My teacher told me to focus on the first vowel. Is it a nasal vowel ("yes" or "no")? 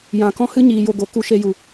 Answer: yes